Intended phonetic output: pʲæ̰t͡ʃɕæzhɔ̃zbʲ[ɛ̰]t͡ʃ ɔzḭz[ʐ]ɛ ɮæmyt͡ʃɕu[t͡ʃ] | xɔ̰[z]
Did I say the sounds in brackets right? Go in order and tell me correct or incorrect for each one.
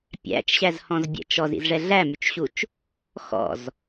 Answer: correct, correct, correct, correct

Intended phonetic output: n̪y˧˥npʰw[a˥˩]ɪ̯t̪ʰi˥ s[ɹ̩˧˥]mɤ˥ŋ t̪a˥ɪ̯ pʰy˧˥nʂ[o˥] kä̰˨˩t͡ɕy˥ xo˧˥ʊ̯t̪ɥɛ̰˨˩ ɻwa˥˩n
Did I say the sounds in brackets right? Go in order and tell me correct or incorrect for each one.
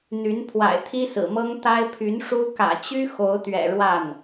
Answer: incorrect, incorrect, incorrect

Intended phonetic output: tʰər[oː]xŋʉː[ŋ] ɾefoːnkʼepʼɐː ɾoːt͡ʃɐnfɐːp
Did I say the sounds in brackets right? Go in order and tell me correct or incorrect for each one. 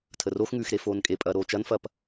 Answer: incorrect, incorrect

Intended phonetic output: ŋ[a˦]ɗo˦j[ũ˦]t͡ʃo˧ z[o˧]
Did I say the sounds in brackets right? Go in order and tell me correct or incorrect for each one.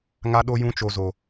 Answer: correct, correct, incorrect

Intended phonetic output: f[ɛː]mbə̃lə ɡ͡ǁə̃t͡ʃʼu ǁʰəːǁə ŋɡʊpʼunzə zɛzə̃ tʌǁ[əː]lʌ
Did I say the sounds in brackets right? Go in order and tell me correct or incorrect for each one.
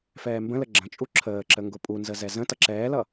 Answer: correct, incorrect

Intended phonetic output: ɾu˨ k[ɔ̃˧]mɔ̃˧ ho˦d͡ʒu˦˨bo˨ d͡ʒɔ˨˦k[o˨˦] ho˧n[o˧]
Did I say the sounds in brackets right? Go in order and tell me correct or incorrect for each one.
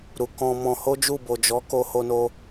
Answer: correct, incorrect, correct

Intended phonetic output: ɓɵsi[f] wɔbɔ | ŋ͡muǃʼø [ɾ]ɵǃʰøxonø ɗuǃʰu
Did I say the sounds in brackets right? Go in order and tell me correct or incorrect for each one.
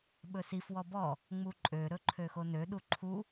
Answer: correct, correct

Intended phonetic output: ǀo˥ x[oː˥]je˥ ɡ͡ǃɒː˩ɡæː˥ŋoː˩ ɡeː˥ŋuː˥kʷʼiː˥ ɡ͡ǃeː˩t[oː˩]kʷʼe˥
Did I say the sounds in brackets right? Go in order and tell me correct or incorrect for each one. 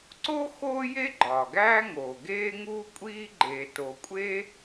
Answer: correct, incorrect

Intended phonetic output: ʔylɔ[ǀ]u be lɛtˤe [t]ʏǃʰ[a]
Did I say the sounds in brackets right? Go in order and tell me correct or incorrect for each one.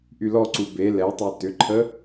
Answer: correct, correct, incorrect

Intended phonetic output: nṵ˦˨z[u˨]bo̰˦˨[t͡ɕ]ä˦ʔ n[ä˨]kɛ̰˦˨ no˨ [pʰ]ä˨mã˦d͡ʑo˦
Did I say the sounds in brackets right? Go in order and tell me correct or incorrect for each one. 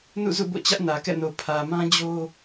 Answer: incorrect, correct, correct, correct

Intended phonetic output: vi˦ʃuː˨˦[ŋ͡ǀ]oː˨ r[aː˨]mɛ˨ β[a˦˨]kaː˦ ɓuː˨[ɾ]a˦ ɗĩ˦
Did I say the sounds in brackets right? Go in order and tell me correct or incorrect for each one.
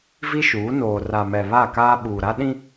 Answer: incorrect, incorrect, correct, correct

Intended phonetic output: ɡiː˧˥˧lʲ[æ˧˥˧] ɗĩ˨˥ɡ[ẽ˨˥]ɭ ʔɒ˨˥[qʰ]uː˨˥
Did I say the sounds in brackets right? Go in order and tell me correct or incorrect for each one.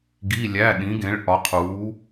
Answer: correct, correct, correct

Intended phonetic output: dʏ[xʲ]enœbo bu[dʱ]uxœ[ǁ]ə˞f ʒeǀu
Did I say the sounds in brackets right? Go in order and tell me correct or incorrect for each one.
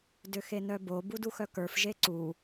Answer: incorrect, incorrect, incorrect

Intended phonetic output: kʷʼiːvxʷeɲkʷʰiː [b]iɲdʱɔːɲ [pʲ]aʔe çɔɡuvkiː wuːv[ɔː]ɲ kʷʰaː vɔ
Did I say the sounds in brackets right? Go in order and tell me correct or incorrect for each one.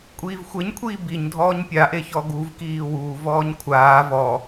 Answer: correct, correct, correct

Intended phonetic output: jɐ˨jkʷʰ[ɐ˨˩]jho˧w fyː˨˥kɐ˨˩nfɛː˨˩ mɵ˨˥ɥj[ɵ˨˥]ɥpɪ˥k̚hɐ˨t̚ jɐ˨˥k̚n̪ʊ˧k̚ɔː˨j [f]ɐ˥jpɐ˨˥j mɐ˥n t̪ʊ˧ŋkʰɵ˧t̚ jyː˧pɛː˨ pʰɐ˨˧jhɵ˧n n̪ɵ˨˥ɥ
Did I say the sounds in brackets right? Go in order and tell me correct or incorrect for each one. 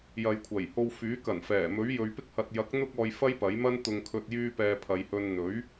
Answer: correct, incorrect, correct

